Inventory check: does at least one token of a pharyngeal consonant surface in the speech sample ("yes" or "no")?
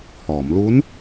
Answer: no